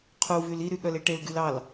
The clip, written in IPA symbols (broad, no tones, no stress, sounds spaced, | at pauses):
qʰ u v y l i ɾ y ɠ œ l e ʈ e l ɡ y l ɑ l